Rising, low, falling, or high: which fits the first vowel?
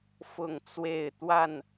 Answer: falling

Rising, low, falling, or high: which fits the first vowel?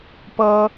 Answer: high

